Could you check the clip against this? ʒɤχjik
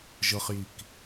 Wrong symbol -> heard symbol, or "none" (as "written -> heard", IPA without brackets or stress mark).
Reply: none